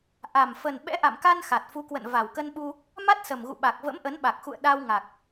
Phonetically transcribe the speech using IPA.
ʔ a˨˩ m f ə˨˩ n ɓ ɛ̰˧˥ ʔ a̰˧˨ m k a˧ n x a˨˩ t̚ f u˨˦ k w ə̰˧˨ n v a˨˩ w k ə˧ n ɓ u˧ | m a˦˥ t̚ s ə˨˩ m ɣ ṵ˧˨ ɓ a˨˩ k̚ v ə̰˧˥ m ʔ ə˨˦ n ɓ a˨˩ k̚ x ṵ˧˨ ə̯ ɗ a˧ w ŋ a˨˩ k̚

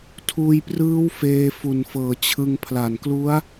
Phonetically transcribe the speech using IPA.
tʰ uː˧ j p r ɯː˦˥ w f eː˧ f u˨˩ n f ɤː˨˩ t͡ɕʰ ɯ˧ ŋ pʰ l a˨˩ n k l u˦˥ a̯

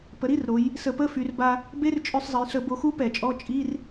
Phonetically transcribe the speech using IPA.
p ə˩˧ ɾ i˧˥˧ r ɾ o˩˧ j | s ə˧˩˧ p ə˧˥˧ f y˩˧ r b a˧ | b e˧˥˧ r t͡ʃʼ ø˧ sˤ zˤ ə˩˧ j ɬ ə˧˩˧ b o˧ x u˦˥ p ɛ˧˩˧ t͡ʃʼ ɔ˧˥˧ t͡ʃʼ i˧˥˧ r

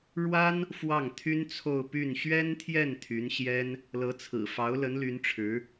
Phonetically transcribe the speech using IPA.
ɻ w a˥ n | f w ɑ˥˩ ŋ t̪ʰ y˥ n t͡sʰ o˥˧ ʊ̯ p y˥˩ n ɕ ɥ ɛ˥ n t̪ʰ j ɛ˥˩ n t̪ʰ y˧˥ n ɕ j ɛ˥ n | l ɤ˧˥ t͡sʰ ɹ̩˨˩ f ɑ˧˥ ʊ̯ l ə˧˥ n l y˧˥ n ʈ͡ʂʰ ɻ̩˧˥

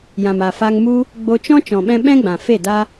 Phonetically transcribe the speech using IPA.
j ã˨ m a˨ f a˧ ŋ m u˦ | ɡ͡b o˧ t͡ʃ ɔ̃˦ t͡ʃ ɔ̃˨ ɓ ɛ̃˧ ɓ ɛ̃˦ ɡ͡b ã˨ f e˦˨ d a˦

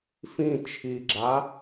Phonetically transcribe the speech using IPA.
f ĩ t͡ʃʰ i ɡ͡ǁ a

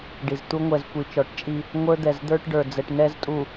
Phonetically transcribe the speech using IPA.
ɖ i˨ z t̪ u˦ ŋʷ ɛ˨ z kʷ i˨ t͡ʃ ɔ˨˦ ʈ t͡ʃʼ i˦ | ŋʷ ə˞˦ d̪ ɛ˨ z d̪ ə˞˦ ʈ ɖ ə˞˨ d͡z ɛ˨ ʈ n ɛ˦ z tʼ u˨

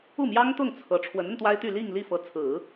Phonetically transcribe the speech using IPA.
u˥˩ m j ɑ˥ ŋ t̪ ʊ˥˩ ŋ t͡sʰ ɤ˧˥ ʈ͡ʂʰ w ə˧˥ n ə˧ n t̪ w a˥ ɪ̯ t̪ y˥˧ l i˥˧ ŋ l i˥˩ f ɤ˧˥ t͡sʰ ɹ̩˨˩˦

